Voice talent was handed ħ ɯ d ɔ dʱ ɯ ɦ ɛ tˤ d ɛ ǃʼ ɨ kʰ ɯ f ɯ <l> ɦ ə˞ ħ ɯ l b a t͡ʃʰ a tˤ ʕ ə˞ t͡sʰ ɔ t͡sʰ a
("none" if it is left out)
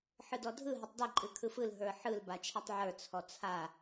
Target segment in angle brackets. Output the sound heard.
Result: l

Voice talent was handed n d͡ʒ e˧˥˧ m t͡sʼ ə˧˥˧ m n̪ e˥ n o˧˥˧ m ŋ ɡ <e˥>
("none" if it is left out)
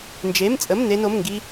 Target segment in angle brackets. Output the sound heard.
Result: i˥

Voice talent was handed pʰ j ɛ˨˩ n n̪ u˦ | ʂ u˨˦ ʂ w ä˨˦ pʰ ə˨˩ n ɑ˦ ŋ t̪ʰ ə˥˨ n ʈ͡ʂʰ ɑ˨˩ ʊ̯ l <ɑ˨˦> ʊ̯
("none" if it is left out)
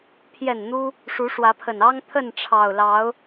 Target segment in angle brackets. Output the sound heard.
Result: ɑ˨˦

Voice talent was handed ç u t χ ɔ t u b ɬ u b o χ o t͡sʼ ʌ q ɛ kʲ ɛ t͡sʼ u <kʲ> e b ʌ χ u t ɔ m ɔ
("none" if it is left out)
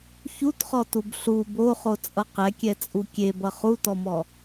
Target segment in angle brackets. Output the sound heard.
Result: kʲ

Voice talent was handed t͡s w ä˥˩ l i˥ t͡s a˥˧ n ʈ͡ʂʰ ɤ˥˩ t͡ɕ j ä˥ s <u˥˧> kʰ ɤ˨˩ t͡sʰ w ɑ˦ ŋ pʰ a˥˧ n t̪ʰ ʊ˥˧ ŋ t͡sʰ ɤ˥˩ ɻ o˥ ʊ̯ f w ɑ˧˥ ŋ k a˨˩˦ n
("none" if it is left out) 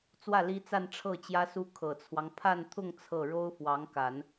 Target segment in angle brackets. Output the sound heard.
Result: u˥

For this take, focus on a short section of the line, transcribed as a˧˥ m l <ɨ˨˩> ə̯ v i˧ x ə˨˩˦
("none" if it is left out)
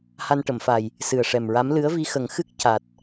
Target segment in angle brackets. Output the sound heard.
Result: ɨ˧˥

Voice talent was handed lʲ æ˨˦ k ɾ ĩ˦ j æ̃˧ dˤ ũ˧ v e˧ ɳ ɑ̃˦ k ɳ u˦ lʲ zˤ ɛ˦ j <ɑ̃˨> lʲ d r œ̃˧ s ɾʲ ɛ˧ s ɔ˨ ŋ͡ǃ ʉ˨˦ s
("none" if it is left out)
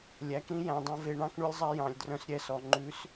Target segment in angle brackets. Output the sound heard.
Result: ɑ̃˨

